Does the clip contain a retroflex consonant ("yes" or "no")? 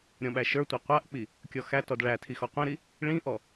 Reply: yes